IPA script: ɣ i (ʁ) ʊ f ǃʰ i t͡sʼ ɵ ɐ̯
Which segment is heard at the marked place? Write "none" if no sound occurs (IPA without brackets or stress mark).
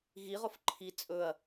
ʁ